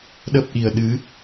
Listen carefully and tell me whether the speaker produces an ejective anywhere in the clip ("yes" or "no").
no